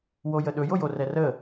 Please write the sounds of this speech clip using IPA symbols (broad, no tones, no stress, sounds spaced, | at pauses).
w o j ə ɗ ɵ j o j o r ɛ r ə